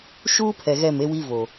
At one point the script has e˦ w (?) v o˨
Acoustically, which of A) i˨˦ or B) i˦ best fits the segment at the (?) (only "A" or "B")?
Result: B